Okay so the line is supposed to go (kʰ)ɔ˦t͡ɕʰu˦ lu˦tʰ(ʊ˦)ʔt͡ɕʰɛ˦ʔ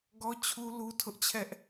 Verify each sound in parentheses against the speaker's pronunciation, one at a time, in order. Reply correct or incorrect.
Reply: incorrect: ɡ, correct

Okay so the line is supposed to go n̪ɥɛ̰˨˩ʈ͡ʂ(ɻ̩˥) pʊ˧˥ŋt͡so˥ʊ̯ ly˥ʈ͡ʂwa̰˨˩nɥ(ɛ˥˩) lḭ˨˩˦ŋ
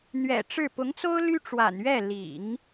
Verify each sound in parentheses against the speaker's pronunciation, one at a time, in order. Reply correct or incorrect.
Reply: incorrect: ɻ̩˥˩, correct

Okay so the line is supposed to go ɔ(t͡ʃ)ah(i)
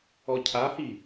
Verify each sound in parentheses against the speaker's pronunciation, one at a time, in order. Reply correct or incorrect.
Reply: incorrect: cʰ, correct

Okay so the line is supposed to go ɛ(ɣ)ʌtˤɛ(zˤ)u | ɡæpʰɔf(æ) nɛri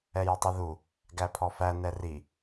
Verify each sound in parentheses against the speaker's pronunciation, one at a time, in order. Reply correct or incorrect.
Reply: incorrect: j, incorrect: ð, correct

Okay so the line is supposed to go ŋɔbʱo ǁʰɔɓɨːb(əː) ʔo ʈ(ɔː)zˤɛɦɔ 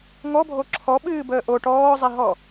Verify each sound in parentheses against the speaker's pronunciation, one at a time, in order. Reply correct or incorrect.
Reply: correct, correct

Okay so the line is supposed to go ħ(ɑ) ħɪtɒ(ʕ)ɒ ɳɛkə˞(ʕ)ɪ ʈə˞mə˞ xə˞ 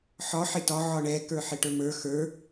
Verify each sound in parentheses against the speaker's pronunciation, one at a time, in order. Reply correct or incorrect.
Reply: incorrect: ɒ, correct, incorrect: ħ

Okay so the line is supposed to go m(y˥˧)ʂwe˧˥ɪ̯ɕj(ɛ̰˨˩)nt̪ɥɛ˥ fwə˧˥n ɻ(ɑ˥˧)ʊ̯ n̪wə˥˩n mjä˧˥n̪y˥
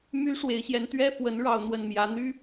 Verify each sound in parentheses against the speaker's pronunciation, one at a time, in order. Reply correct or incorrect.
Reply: incorrect: y˥, incorrect: ɛ˧˥, correct

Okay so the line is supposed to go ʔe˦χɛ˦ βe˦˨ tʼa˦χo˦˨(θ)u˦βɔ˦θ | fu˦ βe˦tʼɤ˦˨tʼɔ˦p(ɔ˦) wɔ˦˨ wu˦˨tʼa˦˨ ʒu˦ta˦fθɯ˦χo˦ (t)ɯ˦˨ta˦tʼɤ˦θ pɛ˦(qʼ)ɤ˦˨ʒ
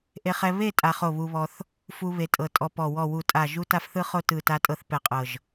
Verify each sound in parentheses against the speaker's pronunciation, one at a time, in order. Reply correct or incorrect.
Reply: incorrect: β, incorrect: ɔ˦˨, correct, correct

